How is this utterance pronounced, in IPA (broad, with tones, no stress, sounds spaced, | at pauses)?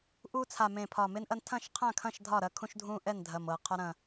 ʔ u˦ t͡sʰ a˨˩ m ẽ˨˩ pʰ ɒ˨˩ m e˦ n ʔ ɐ˦ n tʰ ɐ̃˥˨ ʃ qʰ ã˥˨ kʰ ɐ̃˥˨ ʃ dʱ ɒ˥˨ ɾ ɐ˦ kʰ ũ˦ ʃ dʱ ũ˦ ʔ ɛ˥˨ n dʱ ɐ˨˩ m ɤ˨˩ qʰ ɒ˦ ɾ ɐ̃˨˩